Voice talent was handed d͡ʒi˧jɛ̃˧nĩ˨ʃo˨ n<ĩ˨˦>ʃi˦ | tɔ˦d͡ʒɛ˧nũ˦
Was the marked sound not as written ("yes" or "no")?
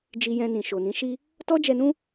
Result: no